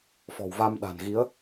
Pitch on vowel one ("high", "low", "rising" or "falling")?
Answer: low